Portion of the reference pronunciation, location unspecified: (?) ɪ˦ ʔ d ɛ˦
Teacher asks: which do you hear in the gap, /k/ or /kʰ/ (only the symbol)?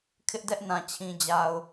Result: kʰ